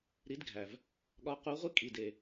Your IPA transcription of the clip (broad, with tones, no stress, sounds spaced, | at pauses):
ɾ i˧˥ d ɡʱ æ˩ v | ɠ ɒ˧˥ q u˧˥ ʁʷ i˥ kʼ i˩˧˩ d e˩